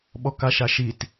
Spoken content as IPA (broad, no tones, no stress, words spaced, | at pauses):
ɓɔkaʃaʃit